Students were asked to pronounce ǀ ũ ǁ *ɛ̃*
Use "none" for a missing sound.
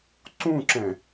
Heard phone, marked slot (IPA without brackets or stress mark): ɛ̃